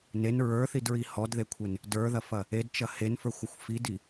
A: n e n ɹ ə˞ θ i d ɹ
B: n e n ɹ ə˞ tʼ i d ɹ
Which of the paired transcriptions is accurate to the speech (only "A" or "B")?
A